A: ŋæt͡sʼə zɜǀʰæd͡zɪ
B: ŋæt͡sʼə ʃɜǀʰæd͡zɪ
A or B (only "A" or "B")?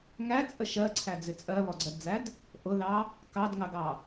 B